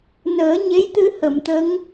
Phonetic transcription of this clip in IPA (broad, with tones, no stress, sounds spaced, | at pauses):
n əː˨˩˦ ɲ e˧˥ j t̪ ɨ˧ h ə˨˩˨ m t̪ ə˧˥ ŋ